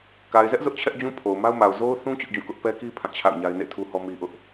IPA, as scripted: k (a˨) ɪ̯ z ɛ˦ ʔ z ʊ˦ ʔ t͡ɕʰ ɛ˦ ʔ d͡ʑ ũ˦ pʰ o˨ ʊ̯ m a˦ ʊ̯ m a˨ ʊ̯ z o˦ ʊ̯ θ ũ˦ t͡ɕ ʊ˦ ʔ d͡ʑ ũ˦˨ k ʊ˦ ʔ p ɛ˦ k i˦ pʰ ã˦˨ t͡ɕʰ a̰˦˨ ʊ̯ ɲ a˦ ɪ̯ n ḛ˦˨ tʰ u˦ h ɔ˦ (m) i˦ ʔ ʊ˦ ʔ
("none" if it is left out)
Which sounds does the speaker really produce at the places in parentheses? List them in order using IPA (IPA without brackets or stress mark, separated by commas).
a˨, m